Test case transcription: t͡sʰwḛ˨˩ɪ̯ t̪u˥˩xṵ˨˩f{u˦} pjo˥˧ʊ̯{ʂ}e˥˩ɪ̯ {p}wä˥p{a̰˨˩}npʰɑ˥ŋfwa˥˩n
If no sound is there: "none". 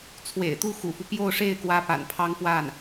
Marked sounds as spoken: u˦, ʂ, k, a̰˨˩

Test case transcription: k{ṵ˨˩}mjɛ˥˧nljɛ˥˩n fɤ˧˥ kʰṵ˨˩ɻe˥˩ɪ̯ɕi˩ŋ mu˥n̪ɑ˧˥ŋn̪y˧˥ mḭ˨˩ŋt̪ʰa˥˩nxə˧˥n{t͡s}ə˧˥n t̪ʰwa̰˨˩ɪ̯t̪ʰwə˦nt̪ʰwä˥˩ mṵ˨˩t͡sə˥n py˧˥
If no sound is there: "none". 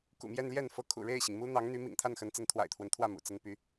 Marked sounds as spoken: ṵ˨˩, t͡s

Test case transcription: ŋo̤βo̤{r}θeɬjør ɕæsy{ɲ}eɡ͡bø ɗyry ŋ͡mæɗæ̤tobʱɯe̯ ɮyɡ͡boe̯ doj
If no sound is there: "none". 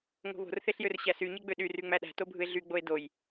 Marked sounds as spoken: r, ɲ

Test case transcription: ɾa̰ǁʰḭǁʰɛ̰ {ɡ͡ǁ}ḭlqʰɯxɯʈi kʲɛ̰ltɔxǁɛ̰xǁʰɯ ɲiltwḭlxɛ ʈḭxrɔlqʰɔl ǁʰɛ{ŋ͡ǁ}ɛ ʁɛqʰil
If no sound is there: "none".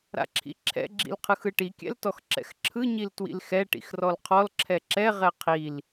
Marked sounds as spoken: ɡ͡ǁ, ǁ

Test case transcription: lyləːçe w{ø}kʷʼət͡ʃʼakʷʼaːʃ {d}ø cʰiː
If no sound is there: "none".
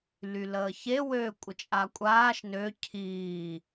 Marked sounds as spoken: øː, n

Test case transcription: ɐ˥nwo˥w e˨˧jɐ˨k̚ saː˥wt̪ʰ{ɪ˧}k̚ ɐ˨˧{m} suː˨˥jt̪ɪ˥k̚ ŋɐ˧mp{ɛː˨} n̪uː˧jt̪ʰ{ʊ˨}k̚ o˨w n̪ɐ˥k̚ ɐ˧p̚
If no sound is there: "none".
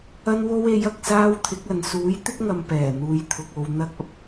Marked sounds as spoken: ɪ˨˥, n, ɛː˨˩, ʊ˨

